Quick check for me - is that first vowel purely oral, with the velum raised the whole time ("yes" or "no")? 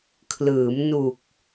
yes